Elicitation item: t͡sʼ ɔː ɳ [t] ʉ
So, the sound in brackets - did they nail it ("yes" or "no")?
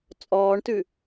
yes